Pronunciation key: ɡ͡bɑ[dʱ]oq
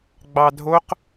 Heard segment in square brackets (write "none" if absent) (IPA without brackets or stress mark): dʱ